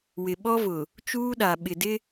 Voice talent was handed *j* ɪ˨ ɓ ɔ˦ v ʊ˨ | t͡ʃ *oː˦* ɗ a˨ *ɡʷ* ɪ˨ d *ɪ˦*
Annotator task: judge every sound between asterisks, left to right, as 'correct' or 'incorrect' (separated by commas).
incorrect, incorrect, incorrect, correct